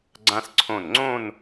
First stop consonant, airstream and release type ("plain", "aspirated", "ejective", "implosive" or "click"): click